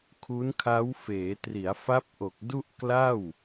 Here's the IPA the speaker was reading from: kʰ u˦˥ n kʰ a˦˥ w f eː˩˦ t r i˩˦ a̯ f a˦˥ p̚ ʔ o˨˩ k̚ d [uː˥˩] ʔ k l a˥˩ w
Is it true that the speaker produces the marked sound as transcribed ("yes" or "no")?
no